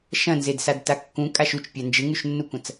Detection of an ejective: present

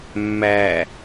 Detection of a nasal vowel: absent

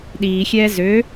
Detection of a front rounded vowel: present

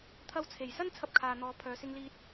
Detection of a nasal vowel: absent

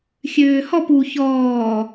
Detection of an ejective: absent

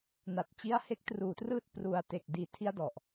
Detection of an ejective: absent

